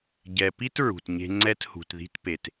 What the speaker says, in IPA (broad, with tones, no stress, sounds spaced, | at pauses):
ɟ ɛ˨ p i˦ t ɹ ṳ˨ t ɲ e̤˦ ŋ͡ǀ ɛ˦ t h ṳ˨ t ð i̤˦ t p e˨ t